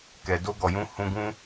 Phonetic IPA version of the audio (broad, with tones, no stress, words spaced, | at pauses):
kɛ˨do˧ɡɔ˨jũ˧ hũ˧ɡũ˦